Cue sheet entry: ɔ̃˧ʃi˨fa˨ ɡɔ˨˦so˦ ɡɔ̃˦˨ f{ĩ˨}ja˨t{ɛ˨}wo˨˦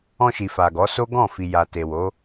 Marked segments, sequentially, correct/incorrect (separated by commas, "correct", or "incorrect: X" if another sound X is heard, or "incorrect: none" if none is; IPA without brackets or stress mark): incorrect: i˨, incorrect: e˨